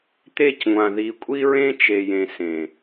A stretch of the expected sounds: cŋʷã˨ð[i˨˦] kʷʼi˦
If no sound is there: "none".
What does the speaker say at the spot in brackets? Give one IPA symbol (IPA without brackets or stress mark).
i˨˦